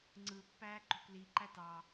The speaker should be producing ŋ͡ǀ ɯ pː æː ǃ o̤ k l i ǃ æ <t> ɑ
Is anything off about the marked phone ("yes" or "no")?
no